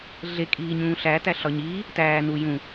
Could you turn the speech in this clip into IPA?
ɮ e kʼ iː ɲ ũː ɬ æ t æ ɬ ɒ ɲ iː | t æː n u j ũ

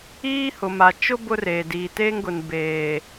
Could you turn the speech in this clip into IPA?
iː˦ h ʊ˨ m a˨ t͡ʃ ʊ˦ b ʊ˦ r eː˨ d iː˨ t eː˦ ŋ ɡ ʊ˨ n b eː˨

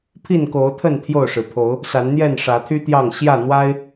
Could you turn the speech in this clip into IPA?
pʰ i˥˨ n k o˨˦ ʊ̯ t̪ʰ ə˥˨ n t̪ʰ j o˥˨ ʊ̯ ʂ ɻ̩˨˩ pʰ o˨˦ ʊ̯ | s a˨˦ n n̪ j ɛ˥˨ n ʂ ä˨˦ t̪ʰ y˦ t̪ j ɑ˥˨ ŋ ɕ j ä˥˨ n̪ w a˦ ɪ̯

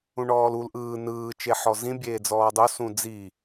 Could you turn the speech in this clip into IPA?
ũ ɳ ɔː l u l ʔ ɯː n ɯː t͡ʃ e ħ ɔ z ĩ bʲ eː d͡z ɔː dˤ o s ũ d͡z i

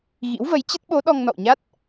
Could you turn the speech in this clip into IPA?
ɣ ḭ˧˥ w v ə˨˦ j t͡ɕ ə˦˥ t̚ ɓ o˨˦ ɗ ɔ˧ ŋ n ɔ̰˧˨ w ɲ a˦˥ t̚

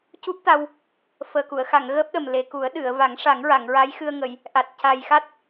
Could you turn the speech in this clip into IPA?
c u˦˥ p̚ t̪ a˧ w | f əː˨˩ k u˨˩˨ ə̯ x a˨˩˨ ŋ ɣ əː˦˥ p̚ ɗ ə˨˩ m l e˨˩ k u˨˩˦ ə̯ ɗ ɨ˨˩˨ ə̯ v a˨˩˦ ŋ ʂ a˨˩˦ ŋ ɹ a˨˩˨ ŋ ɹ a˧˥ j x ɨ˧ ə̯ ŋ ə˨˩˨ j | ʔ a˨˩ t̚ c a˨˩ j x a˦˥ t̚

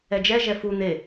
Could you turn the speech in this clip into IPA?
ɛ d͡ʒ ɛ ʒ ɛ f u n̪ e

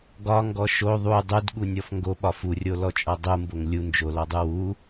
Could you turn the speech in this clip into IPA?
ɡ ɒ ŋ ɡ ɔ ʃ o ðˤ u dˤ u d ɠ u nʲ ɔ f ŋ ɡ o ɓ ɒ f u rʲ o l ɔ t͡ʃʼ ɔ dˤ u m b o ŋ lʲ u n d͡ʒ o l ɔ dˤ u w u

